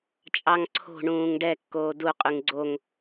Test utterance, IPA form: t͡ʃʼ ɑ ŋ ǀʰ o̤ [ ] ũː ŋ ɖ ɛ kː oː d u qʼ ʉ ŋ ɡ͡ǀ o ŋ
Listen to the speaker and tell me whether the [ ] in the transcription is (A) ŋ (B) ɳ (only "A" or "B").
B